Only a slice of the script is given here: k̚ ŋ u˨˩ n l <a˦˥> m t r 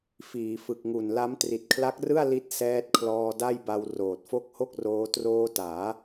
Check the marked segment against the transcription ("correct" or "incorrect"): correct